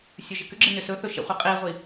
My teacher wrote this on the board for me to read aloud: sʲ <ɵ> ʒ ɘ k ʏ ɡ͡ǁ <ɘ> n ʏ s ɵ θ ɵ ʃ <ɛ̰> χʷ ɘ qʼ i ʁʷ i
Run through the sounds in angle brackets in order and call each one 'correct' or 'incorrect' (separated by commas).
correct, correct, correct